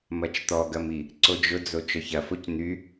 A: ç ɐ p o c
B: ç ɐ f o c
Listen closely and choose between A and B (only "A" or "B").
B